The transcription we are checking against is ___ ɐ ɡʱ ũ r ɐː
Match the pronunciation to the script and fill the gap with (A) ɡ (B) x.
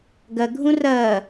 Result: A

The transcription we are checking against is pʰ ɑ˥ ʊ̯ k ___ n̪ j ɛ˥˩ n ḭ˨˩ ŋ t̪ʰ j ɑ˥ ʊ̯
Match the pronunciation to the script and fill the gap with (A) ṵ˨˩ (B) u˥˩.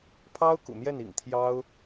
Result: A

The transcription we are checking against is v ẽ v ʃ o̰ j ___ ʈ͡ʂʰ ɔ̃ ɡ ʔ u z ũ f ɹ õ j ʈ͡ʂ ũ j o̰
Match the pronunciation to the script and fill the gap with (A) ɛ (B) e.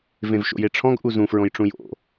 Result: B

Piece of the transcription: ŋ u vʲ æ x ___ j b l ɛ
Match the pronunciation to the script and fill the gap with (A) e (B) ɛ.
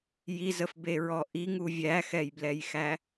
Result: B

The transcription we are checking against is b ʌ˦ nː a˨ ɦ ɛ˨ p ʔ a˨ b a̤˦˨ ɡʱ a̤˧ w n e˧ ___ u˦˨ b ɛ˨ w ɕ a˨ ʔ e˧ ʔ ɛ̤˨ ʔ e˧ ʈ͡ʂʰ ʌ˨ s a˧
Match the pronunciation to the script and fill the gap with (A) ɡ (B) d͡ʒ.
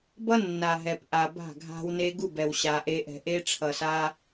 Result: A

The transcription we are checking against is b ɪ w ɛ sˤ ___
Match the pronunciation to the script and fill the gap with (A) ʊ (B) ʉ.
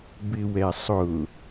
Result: A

